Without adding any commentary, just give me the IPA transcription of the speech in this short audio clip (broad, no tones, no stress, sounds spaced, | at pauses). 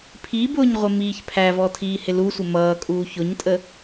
pʰ i b ʊː ɲ ʁʷ ɪ m iː ç pʰ æ v ɔ tʰ iː h ɪ l u sʷ ɪ m ʌː kʼ uː ç ʊ ɲ tʼ ə